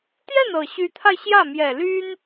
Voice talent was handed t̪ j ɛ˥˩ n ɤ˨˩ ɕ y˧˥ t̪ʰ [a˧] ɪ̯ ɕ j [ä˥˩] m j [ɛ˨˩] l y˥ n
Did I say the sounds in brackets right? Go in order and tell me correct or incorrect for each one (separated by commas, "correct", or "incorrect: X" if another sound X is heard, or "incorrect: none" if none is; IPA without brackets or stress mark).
correct, correct, correct